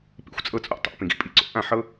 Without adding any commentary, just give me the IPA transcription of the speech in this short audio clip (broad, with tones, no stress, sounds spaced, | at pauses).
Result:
p ḭ˧ xʷ t͡sʼ ɤ˧ t͡sʼ o̰˧ tˤ o̰˨˦ p ĩ˧ ɡ ḭ˦ pʼ i˧ ǀ o̰˦ ʔ ã˦˨ ħ ɤ˦